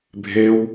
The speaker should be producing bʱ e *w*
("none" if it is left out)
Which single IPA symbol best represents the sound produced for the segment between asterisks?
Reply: w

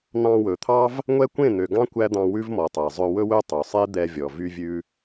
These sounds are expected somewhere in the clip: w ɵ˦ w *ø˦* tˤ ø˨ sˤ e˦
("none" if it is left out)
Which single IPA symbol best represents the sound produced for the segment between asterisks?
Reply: ø˦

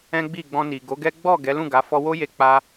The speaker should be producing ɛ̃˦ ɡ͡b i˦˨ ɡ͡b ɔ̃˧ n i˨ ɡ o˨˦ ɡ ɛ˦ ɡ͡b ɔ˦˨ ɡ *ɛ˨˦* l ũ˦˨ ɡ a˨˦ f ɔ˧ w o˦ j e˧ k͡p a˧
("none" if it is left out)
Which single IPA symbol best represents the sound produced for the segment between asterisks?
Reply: ɛ˨˦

